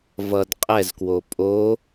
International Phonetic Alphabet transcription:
v ʌ d qʼ ɛ z k w o pʼ o

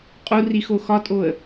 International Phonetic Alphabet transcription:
qʼ u r i x o x ɒ tʼ o ə̯

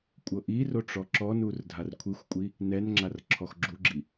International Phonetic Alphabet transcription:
kʷʼ ɤ ʔ i r o ʈ͡ʂ ɔ ǁ ɔ n u r dʱ a r kʷʰ i xʷ kʷʼ i | n ɛ n ŋ͡ǁ a r ǁʰ ɔ x ɡ͡ǁ u ɡ͡ǁ i

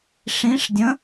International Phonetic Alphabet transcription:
ʂ ĩ ʂ dʲ ə̃

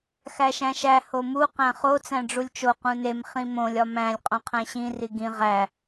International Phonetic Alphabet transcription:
x æ ʃ æ̃ ʃ æ h o m u q æ̃ χ o t͡s æ̃ ɖ͡ʐ u lʲ t͡ʃ o q ũ n e m χ ĩ m õ lʲ ɒ m æ̃ lʲ qʼ õ qʰ æ̃ ɕ ĩ r i ɡ ĩ ʁ æ

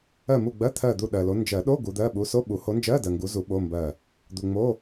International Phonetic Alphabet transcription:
ɜ˦˨ m u˦˨ ɡ͡b ɜ˧˥˧ t̪ʰ ɜ˦˨ d̪ u˦˨ ɗ ɜ˨ l o˨˦ n d͡ʒ ɜ˨˩˦ ɗ o˧˥˧ ɡ u˨˦ d̪ ɜ˧˥˧ ɓ u˨˦ s o˧˥˧ ɓ u˨˩˦ h o˨˦ n d͡ʒ ɜ˧˥˧ d ɜ˨ ŋ ɡ u˨˦ z u˨˩˦ ɓ o˧˥˧ m b ɜ˦˨ | d̪ u˨ ŋ͡m o˧˥˧

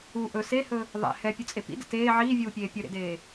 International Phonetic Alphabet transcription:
u ʔ ɵ s e h ɵ | ðˤ ɛ̰ h ɛ pʲ ɵ t͡sʼ e p ḭ d ə̰ t eː ʕ iː vʲ uː pʲ eː pʲ ɵ ɾ ḛ d eː

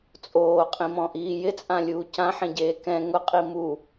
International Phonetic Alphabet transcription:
t͡sʼ oː qʼ ĩ m ɔ̃ ʔ iː j ɪ t͡sʼ ã lʲ uː c ã ħ ẽ ɟ eː k ɛ̃ ŋ ʊ qʼ i m u

